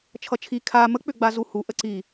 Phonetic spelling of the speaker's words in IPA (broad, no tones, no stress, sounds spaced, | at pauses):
t͡ʃʰ ʌ t͡ʃʰ i kʰ a m ə k͡p ʏ ɡ͡b a z u h u ʔ ə ǀ i